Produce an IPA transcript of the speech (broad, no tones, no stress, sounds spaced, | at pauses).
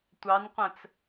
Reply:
tʷ ɑ n qʷ æ̃ t͡s